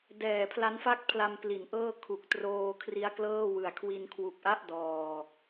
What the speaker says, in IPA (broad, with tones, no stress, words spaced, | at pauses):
dɛː˨˩pʰla˦˥nfa˥˩k̚pʰla˧m pli˩˦nʔɤː˥˩ kʰu˨˩k̚ troː˧ kʰri˦˥a̯klɤː˥˩wɯ˨˩a̯ kʰwi˧nkʰwu˨˩k̚ʔa˥˩ʔ dɔː˨˩